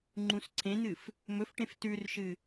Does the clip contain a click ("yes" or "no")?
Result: yes